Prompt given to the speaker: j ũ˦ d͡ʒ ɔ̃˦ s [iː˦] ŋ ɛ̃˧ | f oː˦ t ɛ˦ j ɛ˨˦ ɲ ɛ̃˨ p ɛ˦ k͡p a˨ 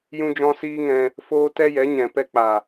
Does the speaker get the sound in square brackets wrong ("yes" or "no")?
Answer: no